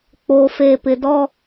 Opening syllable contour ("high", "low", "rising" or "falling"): low